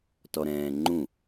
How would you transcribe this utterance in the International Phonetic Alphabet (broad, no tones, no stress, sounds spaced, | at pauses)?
t ɔ ɾ ɛ̃ː ŋ͡ǃ ũ